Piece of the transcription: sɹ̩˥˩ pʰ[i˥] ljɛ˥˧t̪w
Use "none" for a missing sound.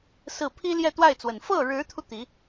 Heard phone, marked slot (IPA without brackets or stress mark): i˥